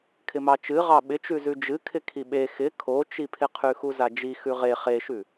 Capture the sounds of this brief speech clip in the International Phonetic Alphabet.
kʰɪmɑt͡ʃɨ ʁɑɓɪt͡ʃʉzʉ d͡ʒɨkʰɪ kʰiɓe xɪ kʰot͡ʃipʰɪqʰʉ xuzad͡ʒi xʉʁe χeʃʉ

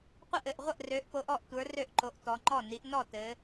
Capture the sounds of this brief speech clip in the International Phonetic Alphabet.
qʷə˥˩ʔɘ˥˩ʔ ʁʷə˥˩ʔrø˩˧ʔpo˩˧ʔ ɔ˥˩ʔtʷə˞˩˧ rø˥˩ʔǃo˩˧ʔtɔ˩˧ŋ͡ǃɔ˥˩ ni˩˧ʔ nɔ˥˩tɘ˩˧

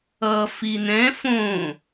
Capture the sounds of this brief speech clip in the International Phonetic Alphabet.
ʌ fin̪ɛ̃ fõ

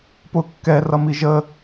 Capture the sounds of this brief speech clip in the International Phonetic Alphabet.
pʊ kːɛ rʌmiʒə

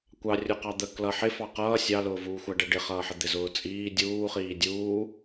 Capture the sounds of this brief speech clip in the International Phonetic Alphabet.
kʷɑ rʲuqɑd̪ə klʌ ħɪ fɑqʌː sʲɑlʊːvuːxʷæ ɖɛɖɪχʌːħə d̪ɪzʊːt͡sʼiː dʲuːχiː dʲuː

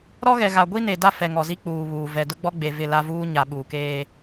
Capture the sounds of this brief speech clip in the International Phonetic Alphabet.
ɾɔ˦ɣɛ˨ɣa˨ ɡʷi˦ ne˨da˦ fɛ˨ŋɔ˨zi˦k͡puː˨ βuː˨ vɛ˨dʊ˦ɡ͡bɔ˦ɡ͡be˨ vɪ˦˨la˦vuː˦ ɲa˨ɓuː˨keː˦

